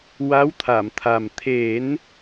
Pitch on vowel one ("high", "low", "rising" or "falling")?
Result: rising